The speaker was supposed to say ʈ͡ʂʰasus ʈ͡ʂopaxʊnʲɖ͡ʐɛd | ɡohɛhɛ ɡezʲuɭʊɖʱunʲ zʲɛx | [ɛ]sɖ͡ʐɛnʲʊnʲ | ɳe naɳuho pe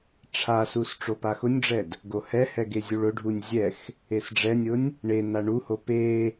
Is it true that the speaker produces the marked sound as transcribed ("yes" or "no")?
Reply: no